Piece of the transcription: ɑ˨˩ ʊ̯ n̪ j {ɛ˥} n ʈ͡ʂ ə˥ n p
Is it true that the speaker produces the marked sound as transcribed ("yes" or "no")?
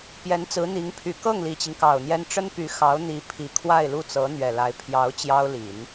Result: yes